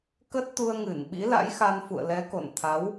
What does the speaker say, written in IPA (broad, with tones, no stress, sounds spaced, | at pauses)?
k ə˦˥ t̚ t̪ u˧ ə̯ ŋ ɨ˧˩ n ɓ ḭ˧˥ l a̰˧˥ j x a˧ n f ṵ˧˨ ə̯ l ɛ˨˦ k o̰˧˨ n t̪ʰ a˨˦ w